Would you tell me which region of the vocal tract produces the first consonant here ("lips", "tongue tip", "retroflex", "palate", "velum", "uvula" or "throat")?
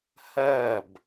throat